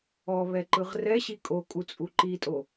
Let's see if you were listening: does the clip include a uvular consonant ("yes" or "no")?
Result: yes